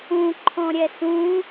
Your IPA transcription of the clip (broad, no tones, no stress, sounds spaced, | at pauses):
ũ ǃʰ ɔ̃ ɾʲ ɛ s ũ